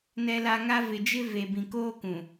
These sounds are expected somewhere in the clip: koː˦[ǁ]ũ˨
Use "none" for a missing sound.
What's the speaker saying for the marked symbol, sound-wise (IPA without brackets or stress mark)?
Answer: k